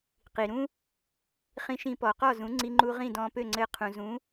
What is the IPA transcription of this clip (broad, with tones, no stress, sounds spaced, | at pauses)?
q i˩ ɾ ũ˥ | χ ĩ˧ ʃ ĩ˧ p ɔ˩ q ɔ˥˩ z ũ˩˥ ŋ͡ǀ i˧ ŋ͡ǃ u˧ ʁ ĩ˥˩ d ɔ̃ː˧ p ø˥˩ ŋ͡ǀ ɘː˧ qʰ ũ˩ z ũ˩˥